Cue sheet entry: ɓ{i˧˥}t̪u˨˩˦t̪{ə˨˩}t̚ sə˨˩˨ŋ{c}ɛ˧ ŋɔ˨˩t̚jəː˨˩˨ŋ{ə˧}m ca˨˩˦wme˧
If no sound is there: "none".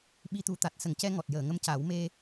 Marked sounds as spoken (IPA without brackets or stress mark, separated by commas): i˧, a˨˩, c, ə˧